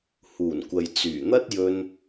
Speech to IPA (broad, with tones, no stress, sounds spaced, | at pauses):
h uː˨˩ n kʷ ɐ˨ j t͡s yː˨˩ n̪ ɐ˥ t̚ j ɵ˧ n